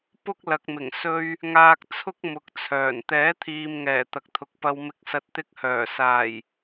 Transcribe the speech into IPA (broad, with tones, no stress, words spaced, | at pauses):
pʊ˥k̚ lɐ˨k̚mɪ˨˩ŋ sɵ˧ɥ | ŋaː˧k̚t͡sʰʊ˥k̚ mʊ˨˥k̚t͡sʰœː˨˩n t̪ɛː˨˥t̪ʰiː˨mŋɛː˨˩ t̪ɐ˨k̚t̪ʰʊ˨k̚ pɐ˨wmɪ˨˥k̚ sɐ˨t̚t̪ɪ˧k̚hœː˨˩saː˨˩j